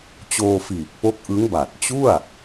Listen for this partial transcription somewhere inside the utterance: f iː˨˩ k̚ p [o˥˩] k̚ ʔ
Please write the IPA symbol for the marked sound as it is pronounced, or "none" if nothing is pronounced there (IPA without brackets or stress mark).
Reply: o˦˥